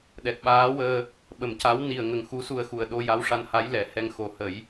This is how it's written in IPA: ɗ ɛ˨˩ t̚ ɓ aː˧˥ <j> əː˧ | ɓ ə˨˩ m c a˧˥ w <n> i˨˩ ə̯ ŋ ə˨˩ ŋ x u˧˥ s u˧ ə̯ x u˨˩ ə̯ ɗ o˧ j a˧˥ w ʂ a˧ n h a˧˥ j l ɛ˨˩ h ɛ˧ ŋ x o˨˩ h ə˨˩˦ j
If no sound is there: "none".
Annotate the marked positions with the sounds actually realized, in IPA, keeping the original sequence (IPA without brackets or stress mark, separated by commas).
w, n